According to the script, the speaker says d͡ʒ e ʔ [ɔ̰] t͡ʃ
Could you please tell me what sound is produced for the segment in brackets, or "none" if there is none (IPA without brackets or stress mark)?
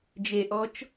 ɔ